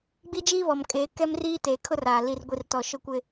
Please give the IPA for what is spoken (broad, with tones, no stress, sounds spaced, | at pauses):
ɡ͡b i˦ d͡ʒ iː˦ β ɔ˨ m kʼ eː˨˦ k ɛ˦ m r iː˦ t eː˨ kʰ ʊ˦ r aː˨ l i˨ r ɡʷ i˨ r t ɔ˨ ʃ ʊ˦ kʷ ɪ˦